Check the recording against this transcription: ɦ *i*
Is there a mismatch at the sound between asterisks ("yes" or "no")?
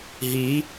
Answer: no